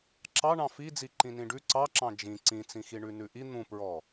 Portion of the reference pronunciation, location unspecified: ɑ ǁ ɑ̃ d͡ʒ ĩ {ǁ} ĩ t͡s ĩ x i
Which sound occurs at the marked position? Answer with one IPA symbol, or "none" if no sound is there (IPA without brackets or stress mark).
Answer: ǀ